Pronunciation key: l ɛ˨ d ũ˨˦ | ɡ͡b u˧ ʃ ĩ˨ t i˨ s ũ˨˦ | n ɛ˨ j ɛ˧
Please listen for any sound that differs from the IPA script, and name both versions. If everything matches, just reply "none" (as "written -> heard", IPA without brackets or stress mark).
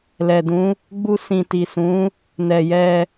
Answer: ʃ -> s